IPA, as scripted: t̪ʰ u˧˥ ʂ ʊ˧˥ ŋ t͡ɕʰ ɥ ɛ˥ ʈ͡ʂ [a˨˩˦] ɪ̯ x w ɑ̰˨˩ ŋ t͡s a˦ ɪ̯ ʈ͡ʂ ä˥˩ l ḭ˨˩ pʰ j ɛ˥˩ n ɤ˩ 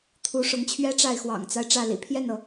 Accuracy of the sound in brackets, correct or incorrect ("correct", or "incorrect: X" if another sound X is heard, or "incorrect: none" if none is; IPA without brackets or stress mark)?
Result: incorrect: a˥˩